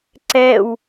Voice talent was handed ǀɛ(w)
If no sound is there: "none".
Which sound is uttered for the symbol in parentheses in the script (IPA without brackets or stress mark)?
w